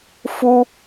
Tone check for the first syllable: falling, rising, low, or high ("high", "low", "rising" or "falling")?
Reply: high